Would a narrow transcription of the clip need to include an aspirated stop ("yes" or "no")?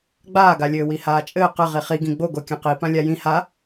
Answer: no